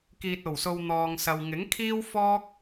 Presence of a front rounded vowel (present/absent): absent